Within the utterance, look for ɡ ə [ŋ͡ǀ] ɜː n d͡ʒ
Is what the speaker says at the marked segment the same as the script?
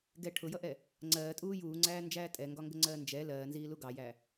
yes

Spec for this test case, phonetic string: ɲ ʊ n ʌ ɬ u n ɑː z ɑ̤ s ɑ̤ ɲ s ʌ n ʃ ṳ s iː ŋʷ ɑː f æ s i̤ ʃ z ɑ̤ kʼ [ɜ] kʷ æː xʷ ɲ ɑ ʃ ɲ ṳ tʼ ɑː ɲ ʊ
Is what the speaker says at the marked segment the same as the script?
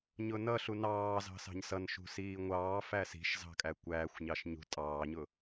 no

